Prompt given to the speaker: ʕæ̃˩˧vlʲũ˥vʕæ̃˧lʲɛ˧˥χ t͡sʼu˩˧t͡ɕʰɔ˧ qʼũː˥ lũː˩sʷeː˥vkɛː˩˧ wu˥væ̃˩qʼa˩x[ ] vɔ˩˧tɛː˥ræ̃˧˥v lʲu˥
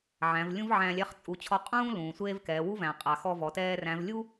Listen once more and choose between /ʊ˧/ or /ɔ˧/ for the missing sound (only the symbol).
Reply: ɔ˧